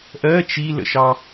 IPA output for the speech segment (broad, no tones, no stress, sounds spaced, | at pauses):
ʔ ɜ t͡ʃ i l ə̰ ʃ ɑ